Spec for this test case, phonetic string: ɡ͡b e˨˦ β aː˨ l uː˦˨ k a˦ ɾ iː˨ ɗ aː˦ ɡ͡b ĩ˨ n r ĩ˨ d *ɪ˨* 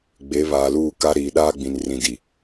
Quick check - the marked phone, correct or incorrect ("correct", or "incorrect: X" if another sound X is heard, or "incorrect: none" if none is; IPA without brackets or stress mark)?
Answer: incorrect: i˨